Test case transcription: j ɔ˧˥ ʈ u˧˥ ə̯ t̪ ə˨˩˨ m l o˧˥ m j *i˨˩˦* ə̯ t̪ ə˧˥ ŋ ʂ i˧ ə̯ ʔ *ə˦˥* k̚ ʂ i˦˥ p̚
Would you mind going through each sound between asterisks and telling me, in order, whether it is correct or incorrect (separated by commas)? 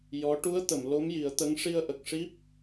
correct, incorrect